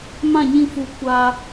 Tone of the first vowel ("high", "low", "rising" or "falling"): falling